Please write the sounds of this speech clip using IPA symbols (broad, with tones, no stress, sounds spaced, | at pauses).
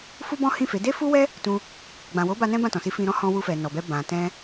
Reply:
f u˦ b ɔ̃˦ h ĩ˦˨ f e˨˦ d e˦ f u˦ w ɛ˦ | t ũ˧ | ɡ͡b ã˨ w o˨˦ b a˧ n ɛ̃˦ b ã˦˨ t ɔ̃˨ s i˧ f ĩ˧ ɾ ɔ̃˦ h ɔ̃˧ w u˧ f ɛ˨ n ɔ˨ b ɛ˧ b ã˨ t ɛ̃˧